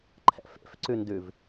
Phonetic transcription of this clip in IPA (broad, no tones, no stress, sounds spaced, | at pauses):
ǃʰ ɛ̰ f ḛ f ǀ ʉ n d ʉ v